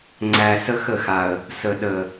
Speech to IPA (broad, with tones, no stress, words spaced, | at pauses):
ŋ͡ǀæ˨ sə˦xə˦˨xa˨ə̯ | sə˨ɗə˨